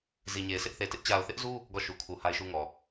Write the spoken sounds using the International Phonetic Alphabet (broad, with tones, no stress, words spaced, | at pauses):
zi˨ɲe˨ɪ̯ sɪ˦ʔθe˨tɪ˦ʔ t͡ɕa˨ʊ̯θɪ˦ʔzu˦ | ɡɔ˦˨ʃu˨kʰu˨ ha˦ɪ̯ʃu˦ŋɔ˨